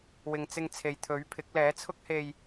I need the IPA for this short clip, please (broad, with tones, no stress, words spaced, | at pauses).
wɪ˨ŋt͡sɪ˧ŋt͡sʰe˨j t̪ʰɵ˨˥ɥpʰɪ˨˥k̚ lɛː˨˥t͡sʰʊ˥k̚he˧j